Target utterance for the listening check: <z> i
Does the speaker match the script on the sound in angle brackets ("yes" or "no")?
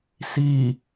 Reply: no